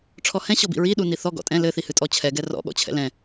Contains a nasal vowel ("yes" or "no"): yes